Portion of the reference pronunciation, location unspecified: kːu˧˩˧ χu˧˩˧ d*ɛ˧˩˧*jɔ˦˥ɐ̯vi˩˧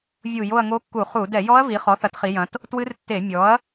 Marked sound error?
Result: no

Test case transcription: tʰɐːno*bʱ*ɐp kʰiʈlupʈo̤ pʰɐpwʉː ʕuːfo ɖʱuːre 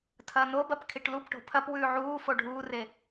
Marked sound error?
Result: yes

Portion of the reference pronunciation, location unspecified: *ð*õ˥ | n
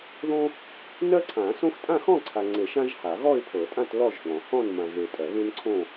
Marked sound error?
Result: no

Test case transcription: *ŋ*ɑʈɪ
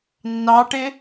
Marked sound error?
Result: yes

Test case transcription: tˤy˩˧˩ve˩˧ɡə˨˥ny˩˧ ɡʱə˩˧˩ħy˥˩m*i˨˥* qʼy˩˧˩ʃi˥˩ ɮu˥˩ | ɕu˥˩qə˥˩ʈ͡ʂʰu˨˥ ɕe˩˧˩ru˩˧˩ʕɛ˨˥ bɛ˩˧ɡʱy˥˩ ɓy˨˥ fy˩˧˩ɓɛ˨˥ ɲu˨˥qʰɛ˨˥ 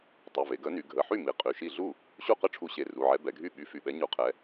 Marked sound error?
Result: yes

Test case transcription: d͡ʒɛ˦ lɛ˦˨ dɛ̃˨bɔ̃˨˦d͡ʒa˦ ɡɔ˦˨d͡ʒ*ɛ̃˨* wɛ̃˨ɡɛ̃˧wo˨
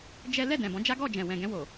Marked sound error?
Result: no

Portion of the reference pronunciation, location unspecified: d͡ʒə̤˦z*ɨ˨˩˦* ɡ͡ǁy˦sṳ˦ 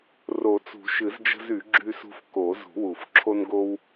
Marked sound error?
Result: yes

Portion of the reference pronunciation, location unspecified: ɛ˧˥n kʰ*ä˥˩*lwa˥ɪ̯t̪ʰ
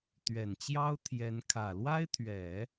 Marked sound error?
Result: yes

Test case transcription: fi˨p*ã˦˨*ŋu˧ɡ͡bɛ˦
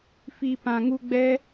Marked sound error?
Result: yes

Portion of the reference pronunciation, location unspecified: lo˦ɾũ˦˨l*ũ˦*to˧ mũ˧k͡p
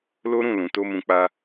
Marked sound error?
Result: yes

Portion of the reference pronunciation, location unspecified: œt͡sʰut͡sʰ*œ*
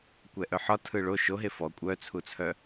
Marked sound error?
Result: no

